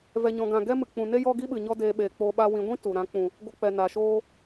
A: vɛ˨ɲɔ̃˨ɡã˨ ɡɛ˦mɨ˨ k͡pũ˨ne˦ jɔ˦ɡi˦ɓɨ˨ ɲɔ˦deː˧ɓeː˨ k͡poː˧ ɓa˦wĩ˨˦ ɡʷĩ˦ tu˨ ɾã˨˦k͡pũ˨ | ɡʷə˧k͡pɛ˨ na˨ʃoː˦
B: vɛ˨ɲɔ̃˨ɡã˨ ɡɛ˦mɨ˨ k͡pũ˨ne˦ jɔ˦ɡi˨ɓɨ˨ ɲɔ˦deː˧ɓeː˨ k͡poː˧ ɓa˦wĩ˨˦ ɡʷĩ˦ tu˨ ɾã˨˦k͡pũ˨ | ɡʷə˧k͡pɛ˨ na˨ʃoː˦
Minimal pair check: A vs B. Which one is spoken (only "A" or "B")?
A